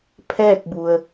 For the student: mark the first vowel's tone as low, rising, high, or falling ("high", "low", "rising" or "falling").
falling